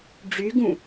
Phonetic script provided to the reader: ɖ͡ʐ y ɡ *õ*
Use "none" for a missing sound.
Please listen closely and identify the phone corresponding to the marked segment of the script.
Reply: ũ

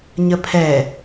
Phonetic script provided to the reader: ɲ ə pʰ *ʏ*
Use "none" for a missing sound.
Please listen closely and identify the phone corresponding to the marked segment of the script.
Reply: ɛ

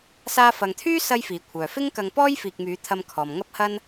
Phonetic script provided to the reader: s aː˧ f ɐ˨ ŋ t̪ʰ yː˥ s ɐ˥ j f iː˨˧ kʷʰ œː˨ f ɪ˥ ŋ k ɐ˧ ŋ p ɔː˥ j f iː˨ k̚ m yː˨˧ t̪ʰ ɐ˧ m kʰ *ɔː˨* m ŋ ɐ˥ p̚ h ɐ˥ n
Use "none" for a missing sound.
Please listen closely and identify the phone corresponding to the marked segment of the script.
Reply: ɔː˨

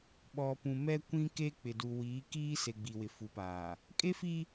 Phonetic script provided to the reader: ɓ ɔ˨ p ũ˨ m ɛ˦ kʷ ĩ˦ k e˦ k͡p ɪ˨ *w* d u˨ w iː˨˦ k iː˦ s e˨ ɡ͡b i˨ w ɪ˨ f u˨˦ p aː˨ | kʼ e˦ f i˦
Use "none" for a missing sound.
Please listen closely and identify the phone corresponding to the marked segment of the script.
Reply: none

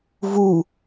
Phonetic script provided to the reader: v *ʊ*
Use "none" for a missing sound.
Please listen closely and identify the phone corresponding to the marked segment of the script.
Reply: u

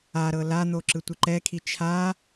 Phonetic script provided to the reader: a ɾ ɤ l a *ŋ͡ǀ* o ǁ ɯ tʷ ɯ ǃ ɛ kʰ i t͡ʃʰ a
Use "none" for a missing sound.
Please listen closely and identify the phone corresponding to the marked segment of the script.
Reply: n̪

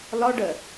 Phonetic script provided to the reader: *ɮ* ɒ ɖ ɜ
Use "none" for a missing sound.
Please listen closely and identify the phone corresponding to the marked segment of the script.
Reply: l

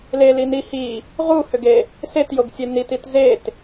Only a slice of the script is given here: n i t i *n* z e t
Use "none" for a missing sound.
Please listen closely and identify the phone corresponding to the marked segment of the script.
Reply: t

